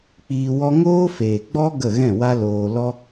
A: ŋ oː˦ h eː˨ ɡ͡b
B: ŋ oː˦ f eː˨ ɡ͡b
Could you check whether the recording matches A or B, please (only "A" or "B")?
B